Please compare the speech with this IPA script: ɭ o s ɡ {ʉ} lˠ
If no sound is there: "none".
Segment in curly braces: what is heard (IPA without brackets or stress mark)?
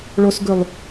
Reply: ʉ